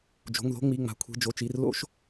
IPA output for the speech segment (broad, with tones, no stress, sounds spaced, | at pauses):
d͡ʒ o̤˩˧˩ ŋ ð o̤˧ ŋ͡m i˩˧˩ ŋ͡m a̤˩˧˩ kʷʰ i̤˩˧˩ d͡ʒ o˩˧˩ t͡ʃ i˩˧˩ r l o̰˧ ʃ